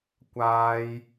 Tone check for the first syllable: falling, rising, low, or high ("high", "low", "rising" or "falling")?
high